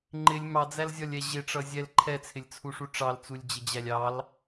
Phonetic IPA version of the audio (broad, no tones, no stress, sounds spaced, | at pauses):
ŋ͡ǃ ɪ lʲ m ɑ d͡z æ l zʲ ɒ lʲ ɛ ʑ ɪ ʈ͡ʂ ʌ zʲ ɛ l ǃʰ ɛ t͡sʰ ɪ lʲ t͡sʰ u ʂ u ʈ͡ʂ ɑ l t͡s u lʲ d͡ʑ ɪ d͡ʑ æ lʲ ɑ l